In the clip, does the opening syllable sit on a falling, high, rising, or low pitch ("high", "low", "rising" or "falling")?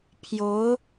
rising